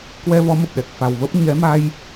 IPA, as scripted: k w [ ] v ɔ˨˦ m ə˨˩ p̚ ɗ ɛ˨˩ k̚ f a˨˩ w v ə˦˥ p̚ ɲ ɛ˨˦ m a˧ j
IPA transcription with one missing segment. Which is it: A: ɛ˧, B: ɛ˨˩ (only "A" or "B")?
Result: A